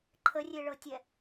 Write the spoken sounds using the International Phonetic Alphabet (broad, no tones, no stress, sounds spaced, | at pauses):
ǃʰ ə rʲ e ɭ ɤ tʲ ɛ